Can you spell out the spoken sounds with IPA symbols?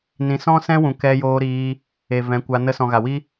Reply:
nĩ˨sɔ̃˦sɛ̃˦wũ˨ kɛ˧joː˧ɾiː˧ | e˨vɛ̃˨˦kʷa˧ nə˧sɔ̃˨ɣa˨wi˦

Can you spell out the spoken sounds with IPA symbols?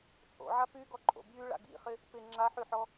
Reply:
t͡sʼo̰ʕa pyɡɔǃʼo̰ bjyɭa̰ ɡḭχɪ | pɪ ŋ͡ǁaħyħɔ

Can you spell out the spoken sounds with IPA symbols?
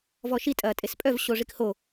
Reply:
vɔʃi tʼɐːtʼespʼœv ɕoʐikho

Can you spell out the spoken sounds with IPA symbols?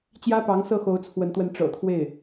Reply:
t͡ɕjä˥pɑ˧˥ŋ sɤ˥˩xo˧˥ʊ̯ t͡sʰwə˧˥nt̪wə˧˥n ʈ͡ʂɤ̰˨˩t̪ʰwe˥˩ɪ̯

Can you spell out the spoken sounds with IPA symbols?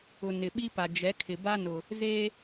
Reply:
ʊ˨ nɪ˨ɓi˦pa˨ d͡ʒɛ˨˦kʰɪ˨ba˦ nʊ˨ | zeː˦

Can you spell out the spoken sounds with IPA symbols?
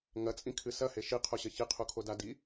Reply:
ŋɐt͡sʼĩkʰɨ sɐhe ʃiqʰoɕɐ çiqʰukʰo dadi

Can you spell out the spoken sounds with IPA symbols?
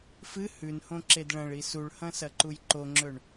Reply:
fɨ hʉnhõǁed ɭɐ̃ɭi suɭhɐ̃sɐǃuj ǃoŋ͡ǁɵɳ

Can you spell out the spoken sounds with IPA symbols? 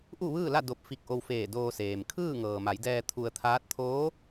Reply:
ʔu˥˨ʋɯː˥˨la˥˨ do˧p̚fi˧k̚ʔo˧wfeː˧˩ doː˧seː˩m kʰɯː˥˨ŋɤː˩ma˩˧jdɛː˧ t̪ʰu˧ə̯t̪ʰaː˧˥t̚ t̪ʰoː˧˥

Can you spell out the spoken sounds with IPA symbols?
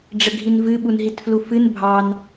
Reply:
ɖ͡ʐəɡʱinvɨ ɓunɦitflufɨn bʱɑn

